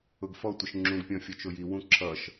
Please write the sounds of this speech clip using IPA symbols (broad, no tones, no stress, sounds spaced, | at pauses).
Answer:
ʊ ɡ f ɔ tʷ ɪ ʃ ŋ͡ǁ ũ ɡ pʲ ɔ̃ fʲ ɔ t͡ʃ ʊ j i w ũ ǁʰ ʌ ʃ